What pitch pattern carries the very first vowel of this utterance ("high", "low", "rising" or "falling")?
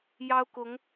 high